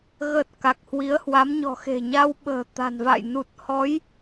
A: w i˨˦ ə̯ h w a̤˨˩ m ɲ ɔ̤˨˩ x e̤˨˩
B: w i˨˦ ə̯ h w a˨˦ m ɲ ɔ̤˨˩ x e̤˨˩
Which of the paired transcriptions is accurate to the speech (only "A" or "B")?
B